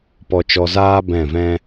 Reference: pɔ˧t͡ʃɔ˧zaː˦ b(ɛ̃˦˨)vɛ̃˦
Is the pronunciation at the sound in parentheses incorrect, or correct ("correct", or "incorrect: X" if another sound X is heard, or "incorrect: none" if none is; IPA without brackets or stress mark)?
correct